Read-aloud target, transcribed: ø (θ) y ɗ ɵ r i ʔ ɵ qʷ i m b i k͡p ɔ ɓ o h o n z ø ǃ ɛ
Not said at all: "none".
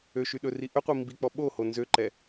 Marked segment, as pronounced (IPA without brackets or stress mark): ʃ